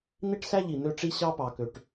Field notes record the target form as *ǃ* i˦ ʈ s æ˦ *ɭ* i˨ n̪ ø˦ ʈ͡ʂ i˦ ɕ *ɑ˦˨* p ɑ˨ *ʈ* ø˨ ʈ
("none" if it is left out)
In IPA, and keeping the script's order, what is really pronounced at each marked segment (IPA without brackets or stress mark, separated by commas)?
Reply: n̪, ʎ, ɑ˦, k